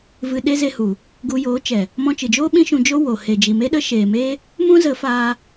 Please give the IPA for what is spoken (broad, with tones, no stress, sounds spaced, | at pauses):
v ɨ˧ ɗ e˦ z e˧ h u˨ | ɡ u˧ j oː˨˦ t͡ʃ ɛ˨ | m ɔ̃˧ t͡ʃ ɨ˨ d͡ʒ oː˦ ɓ ĩ˦ ʃ ũ˧ d͡ʒ o˦ w o˨ h e˨ d͡ʒ i˨ m e˦ ɗ ə˦ ʃ eː˨ m eː˦ | m ũ˦ z ə˨˦ f aː˧